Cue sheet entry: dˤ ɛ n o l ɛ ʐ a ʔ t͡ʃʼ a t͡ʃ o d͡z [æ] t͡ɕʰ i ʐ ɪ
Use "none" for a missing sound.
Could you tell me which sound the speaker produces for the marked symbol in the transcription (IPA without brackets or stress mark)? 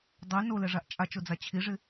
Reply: a